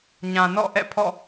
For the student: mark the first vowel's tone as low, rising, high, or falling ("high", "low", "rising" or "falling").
low